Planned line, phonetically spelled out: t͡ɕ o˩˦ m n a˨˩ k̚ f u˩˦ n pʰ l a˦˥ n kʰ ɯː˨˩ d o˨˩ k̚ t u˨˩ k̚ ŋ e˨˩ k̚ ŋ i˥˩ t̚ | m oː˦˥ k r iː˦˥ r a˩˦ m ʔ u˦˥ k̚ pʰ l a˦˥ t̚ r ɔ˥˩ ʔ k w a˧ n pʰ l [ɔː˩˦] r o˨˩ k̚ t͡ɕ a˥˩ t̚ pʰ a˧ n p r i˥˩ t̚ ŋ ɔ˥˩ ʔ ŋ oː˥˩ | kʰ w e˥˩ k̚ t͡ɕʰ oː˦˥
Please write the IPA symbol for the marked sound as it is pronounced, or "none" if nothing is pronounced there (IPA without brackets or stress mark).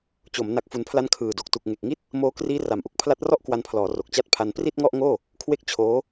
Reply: ɔː˩˦